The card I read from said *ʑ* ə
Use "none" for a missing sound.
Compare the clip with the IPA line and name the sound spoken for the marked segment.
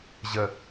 ʑ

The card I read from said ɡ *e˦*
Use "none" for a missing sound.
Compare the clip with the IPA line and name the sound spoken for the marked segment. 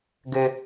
ø˦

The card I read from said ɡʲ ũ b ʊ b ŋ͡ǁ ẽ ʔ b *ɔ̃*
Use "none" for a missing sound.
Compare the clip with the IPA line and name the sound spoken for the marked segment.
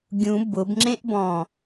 ɔ̃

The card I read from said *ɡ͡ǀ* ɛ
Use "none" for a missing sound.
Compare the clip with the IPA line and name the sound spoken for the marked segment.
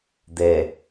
d̪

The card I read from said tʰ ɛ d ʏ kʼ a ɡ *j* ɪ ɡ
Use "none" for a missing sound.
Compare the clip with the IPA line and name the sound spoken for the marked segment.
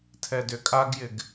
j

